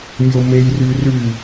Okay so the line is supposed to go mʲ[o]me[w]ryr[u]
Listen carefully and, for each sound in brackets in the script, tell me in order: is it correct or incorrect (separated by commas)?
correct, incorrect, incorrect